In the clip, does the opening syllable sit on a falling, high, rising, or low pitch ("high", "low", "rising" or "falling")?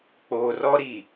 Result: low